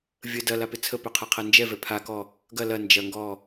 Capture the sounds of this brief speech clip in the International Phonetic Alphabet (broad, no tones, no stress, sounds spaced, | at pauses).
vʲ ə d ɐ l a p ɪ t͡sʰ ə p œ qʰ ɛ qʰ ɛ n d͡ʒ ɛ v ɛ pʰ a k ɔ | ɡ ɐ l ɐ n d͡ʒ ɐ ŋ ɡ ɔ